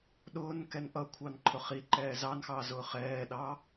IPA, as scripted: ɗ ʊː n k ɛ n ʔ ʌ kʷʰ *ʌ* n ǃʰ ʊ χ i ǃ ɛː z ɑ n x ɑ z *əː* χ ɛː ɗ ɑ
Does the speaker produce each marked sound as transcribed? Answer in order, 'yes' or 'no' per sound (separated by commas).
no, no